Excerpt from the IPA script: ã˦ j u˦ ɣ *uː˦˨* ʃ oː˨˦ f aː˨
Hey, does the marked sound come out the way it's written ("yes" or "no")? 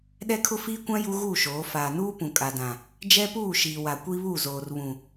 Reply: yes